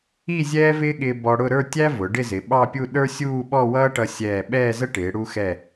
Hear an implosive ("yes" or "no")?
yes